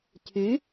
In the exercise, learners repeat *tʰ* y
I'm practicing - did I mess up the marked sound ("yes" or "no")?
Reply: no